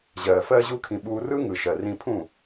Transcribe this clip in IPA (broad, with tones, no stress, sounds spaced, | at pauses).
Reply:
ʑ ɜː˨ f ɜː˧ ʑ uː˧ kʰ ĩ˨ ɓ uː˧ r ɯ˦ ŋ ɯ˨ ʃ ɜ˨ r ĩ˧ pʰ ũ˦˨